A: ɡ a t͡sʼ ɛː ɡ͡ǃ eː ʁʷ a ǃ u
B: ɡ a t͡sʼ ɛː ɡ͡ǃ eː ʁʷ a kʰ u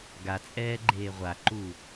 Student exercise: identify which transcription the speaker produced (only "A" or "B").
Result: A